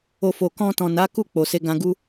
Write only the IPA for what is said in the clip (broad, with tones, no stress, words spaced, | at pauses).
o˧ fo˨kɔ̃˧tɔ̃˨na˨˦ ku˦˨k͡po˨ se˧ɡã˧ ɡu˦